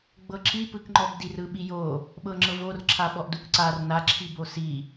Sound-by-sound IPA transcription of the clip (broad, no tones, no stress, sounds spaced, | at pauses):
ɡ͡b ɤ ǁ i p ɯ k ŋ͡ǃ ɔ b d i r ɯ ɓ i j o | ɓ ɤ ŋ͡ǁ ɤ v o r ǁʰ a ɓ ɔ ʔ d u k ǀ a r n a ǁʰ i b o s i